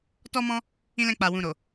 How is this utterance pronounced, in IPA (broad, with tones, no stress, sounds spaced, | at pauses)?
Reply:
t ɔ˦ m ɔ̃˦ | ĩ˧ l ɛ̃˧ k͡p a˨ w ũ˨ ɾ o˨